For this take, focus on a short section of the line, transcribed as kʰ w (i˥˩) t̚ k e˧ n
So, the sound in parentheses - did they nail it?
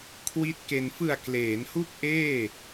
no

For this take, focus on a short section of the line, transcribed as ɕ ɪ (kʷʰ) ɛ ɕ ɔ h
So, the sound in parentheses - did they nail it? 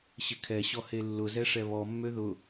no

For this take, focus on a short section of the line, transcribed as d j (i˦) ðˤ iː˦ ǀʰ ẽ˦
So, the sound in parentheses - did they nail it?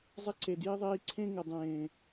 yes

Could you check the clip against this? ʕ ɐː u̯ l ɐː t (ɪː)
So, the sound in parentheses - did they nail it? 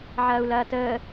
no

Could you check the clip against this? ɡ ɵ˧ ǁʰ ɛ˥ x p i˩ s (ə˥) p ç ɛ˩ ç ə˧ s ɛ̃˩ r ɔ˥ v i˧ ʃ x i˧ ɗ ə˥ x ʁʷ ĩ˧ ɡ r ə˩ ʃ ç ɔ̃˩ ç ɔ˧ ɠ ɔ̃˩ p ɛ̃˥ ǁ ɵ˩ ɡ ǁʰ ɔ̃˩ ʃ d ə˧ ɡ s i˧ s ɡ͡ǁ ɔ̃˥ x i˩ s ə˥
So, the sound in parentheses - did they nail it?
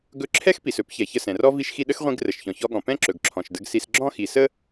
no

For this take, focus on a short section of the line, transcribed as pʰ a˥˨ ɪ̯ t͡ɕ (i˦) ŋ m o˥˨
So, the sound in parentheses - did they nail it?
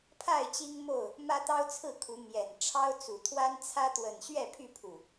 yes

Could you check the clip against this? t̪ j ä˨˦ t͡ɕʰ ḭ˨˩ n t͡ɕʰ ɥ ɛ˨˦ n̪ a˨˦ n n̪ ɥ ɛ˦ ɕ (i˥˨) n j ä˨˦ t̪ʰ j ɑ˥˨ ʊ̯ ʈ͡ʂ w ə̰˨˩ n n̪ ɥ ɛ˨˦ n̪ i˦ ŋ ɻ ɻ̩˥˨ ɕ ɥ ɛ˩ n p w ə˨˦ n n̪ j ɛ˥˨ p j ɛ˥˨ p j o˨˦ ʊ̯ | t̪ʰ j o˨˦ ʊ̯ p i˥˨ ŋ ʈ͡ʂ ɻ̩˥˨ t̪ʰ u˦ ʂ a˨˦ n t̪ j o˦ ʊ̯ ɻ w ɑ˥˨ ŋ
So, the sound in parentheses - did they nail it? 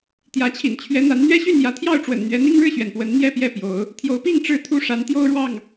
no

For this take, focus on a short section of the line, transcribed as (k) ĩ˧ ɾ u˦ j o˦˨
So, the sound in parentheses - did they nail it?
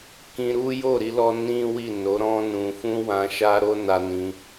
yes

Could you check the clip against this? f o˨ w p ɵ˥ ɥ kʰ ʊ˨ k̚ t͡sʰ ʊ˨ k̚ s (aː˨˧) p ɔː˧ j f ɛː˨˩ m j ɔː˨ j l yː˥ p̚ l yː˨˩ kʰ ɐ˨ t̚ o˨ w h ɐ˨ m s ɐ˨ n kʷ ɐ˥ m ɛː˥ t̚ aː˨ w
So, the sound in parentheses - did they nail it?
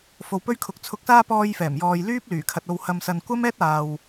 no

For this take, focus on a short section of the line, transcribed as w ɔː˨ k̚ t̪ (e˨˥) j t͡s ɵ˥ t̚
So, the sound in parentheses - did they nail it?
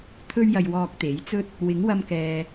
yes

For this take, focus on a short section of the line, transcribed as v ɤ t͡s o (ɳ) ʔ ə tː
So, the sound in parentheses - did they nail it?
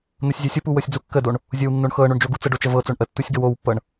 yes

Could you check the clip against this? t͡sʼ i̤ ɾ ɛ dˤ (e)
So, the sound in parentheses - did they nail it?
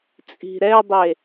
yes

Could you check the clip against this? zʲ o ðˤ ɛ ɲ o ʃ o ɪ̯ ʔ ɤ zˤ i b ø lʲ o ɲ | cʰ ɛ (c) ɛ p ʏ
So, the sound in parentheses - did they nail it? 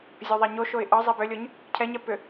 no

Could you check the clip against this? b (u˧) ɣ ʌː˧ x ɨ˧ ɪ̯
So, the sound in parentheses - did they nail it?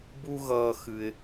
yes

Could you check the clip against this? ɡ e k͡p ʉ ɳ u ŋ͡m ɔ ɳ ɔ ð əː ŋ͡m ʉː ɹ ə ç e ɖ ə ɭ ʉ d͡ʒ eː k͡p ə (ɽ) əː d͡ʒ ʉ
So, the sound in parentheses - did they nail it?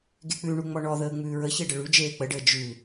no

